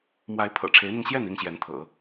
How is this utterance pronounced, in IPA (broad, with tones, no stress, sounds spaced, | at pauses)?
m w a˧˥ ɪ̯ pʰ ɤ̰˨˩ ʈ͡ʂʰ e˧˥ ɪ̯ n̪ i˧ ŋ ɕ j ɛ˥˩ n i˥ ŋ ɕ j ɛ˧˥ n t̪ʰ ɤ̰˨˩˦